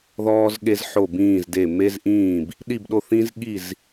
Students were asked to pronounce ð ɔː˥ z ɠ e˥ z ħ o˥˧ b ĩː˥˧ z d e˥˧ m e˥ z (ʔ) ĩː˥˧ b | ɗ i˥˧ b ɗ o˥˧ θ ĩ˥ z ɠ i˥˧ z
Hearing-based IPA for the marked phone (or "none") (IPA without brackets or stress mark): ʔ